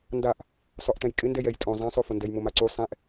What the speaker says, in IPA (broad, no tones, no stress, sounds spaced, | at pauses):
n d a ʔ | sˤ ʊ ʔ t ɛ̃ j kʼ ɪ n d ɛ j ɛ j tʼ õ zˤ ɛ̃ sˤ o f ʊ n d ɛ j m ʊ m a ǀ u sˤ ɛ̃ ʔ